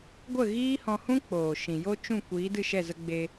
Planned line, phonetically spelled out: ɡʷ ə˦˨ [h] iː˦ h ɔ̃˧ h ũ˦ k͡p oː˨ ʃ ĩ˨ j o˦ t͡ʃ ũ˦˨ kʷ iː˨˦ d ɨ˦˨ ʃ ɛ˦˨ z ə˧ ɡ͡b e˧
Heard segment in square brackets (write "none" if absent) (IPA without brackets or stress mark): ɣ